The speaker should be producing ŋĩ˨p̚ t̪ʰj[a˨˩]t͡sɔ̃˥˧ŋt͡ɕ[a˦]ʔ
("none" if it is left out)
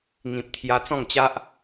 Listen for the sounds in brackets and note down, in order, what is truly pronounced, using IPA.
a˧, a˦

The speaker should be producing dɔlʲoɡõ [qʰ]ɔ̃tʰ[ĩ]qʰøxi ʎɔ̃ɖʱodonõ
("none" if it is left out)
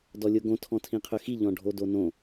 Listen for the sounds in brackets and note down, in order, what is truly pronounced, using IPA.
tʰ, ĩ

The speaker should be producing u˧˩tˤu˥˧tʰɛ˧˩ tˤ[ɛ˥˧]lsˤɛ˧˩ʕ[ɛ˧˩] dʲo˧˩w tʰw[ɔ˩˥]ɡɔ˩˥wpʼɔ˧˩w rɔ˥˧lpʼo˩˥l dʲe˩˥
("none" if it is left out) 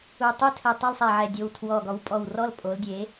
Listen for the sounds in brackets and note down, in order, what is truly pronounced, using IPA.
ɛ˥˧, ɛ˧˩, ɔ˧˩

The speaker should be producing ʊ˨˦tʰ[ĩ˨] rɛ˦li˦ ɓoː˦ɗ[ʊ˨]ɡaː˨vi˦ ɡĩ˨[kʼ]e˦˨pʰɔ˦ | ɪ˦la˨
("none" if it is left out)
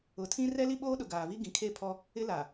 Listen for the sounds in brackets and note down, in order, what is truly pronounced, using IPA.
ĩ˦, ʊ˨, kʰ

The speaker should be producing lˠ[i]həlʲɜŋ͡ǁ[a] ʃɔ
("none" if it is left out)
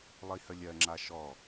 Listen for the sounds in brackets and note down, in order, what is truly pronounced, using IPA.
i, a

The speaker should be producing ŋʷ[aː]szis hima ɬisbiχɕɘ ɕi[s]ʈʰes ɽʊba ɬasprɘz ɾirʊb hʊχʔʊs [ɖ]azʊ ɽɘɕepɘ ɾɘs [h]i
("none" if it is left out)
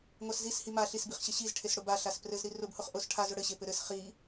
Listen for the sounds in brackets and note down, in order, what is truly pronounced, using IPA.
a, z, ʈʰ, χ

